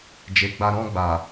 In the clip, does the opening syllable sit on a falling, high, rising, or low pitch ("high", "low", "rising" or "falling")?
low